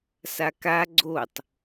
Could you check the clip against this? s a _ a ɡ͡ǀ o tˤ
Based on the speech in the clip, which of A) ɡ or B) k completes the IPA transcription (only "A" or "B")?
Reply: B